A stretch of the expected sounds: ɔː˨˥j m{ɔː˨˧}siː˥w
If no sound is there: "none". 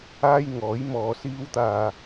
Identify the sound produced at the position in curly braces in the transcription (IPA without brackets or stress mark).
ɔː˨˧